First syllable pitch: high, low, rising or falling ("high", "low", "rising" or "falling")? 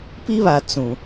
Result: high